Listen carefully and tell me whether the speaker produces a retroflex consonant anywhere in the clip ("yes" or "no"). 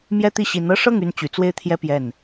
yes